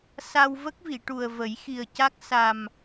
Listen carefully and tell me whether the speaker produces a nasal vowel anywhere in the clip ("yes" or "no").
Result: no